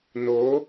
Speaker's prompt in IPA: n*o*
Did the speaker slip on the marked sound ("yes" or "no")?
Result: no